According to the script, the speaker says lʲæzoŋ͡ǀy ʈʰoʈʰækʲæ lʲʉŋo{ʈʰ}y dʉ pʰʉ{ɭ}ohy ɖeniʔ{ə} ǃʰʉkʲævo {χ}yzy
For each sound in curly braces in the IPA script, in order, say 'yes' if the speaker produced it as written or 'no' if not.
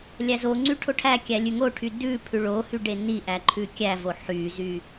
yes, yes, no, no

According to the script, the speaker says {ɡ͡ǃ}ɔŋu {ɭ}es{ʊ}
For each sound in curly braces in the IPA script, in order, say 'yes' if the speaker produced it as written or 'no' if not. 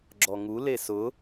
no, no, yes

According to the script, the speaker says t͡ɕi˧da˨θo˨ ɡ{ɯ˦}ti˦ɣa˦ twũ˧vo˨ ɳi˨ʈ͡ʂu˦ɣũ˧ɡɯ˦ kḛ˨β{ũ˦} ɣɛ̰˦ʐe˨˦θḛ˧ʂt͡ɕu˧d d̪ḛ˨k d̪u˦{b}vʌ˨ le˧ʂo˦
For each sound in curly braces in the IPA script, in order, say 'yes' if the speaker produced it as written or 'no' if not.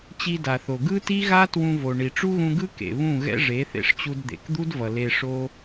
yes, no, no

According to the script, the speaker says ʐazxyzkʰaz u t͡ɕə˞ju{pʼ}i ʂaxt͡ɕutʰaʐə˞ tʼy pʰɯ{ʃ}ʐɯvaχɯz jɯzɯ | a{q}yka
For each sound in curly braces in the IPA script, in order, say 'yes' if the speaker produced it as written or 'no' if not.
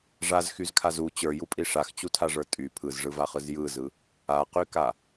yes, no, yes

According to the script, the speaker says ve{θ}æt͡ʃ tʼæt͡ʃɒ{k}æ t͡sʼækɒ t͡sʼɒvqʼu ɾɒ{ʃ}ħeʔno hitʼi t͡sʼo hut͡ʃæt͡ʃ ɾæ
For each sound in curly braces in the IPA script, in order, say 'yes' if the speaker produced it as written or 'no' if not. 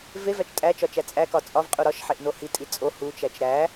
no, no, yes

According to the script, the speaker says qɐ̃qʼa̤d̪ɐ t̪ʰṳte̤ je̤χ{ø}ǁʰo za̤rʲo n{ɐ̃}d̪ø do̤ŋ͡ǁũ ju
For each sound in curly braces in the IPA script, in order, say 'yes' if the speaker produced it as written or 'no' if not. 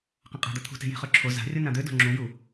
yes, no

